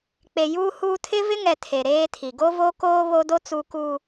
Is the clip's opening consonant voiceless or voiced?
voiceless